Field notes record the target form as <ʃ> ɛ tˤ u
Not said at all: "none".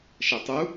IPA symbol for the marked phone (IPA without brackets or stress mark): ʃ